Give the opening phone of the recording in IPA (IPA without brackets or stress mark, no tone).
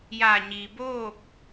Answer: j